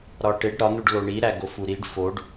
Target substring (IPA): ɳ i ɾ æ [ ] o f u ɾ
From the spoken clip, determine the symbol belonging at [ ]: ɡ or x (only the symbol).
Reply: ɡ